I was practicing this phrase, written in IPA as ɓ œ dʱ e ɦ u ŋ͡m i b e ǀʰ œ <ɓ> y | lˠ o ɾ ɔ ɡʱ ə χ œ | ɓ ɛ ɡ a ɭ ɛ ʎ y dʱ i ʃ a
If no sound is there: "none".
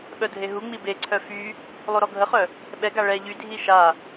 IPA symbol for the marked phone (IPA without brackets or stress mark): f